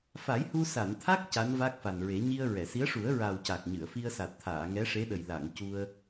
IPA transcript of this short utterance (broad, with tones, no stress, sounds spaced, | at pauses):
f a˨˩˦ j h u˧ s a˨˩˨ n t̪ʰ a˦˥ k̚ c a˧˥ n v a˦˥ k̚ f a˨˩ n ɹ e˨˩˦ ɲ i˧ ə̯ ɹ ɛ˨˩˨ s i˧˥ ə̯ ʂ u˨˩˦ ə̯ ɹ a˨˩ w c a˨˩ k̚ ɲ ɨ˨˩˨ ə̯ f i˧ ə̯ s a˨˩ t̚ t̪ʰ aː˨˩˨ ŋ ɛ˧˥ ʂ e˧˥ ɗ ə˨˩ j l a˨˩˨ ŋ c u˧ ə̯